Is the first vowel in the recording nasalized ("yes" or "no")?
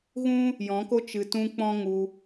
yes